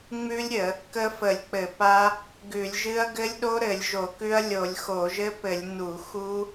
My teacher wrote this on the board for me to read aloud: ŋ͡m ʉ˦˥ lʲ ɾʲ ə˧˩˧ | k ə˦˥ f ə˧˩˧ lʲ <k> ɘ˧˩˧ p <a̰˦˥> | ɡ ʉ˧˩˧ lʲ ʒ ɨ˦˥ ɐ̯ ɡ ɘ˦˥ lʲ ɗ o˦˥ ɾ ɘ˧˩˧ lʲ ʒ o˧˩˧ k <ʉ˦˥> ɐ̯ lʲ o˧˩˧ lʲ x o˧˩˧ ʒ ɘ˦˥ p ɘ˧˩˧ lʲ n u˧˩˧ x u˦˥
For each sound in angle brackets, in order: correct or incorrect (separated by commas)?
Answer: incorrect, incorrect, correct